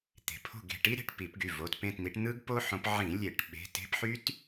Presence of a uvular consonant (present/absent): absent